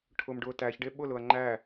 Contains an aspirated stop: yes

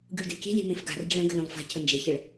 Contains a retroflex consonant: yes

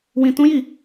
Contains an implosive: no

